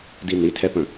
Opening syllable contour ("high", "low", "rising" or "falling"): high